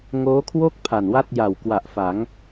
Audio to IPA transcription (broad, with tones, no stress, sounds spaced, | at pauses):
ŋ oː˦˥ kʰ w o˥˩ k̚ pʰ a˨˩ n w a˥˩ t̚ j a˨˩ w k w a˨˩ ʔ f a˩˦ ŋ